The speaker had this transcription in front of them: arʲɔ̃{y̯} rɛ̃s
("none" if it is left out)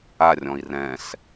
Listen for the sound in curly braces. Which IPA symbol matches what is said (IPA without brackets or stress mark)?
i̯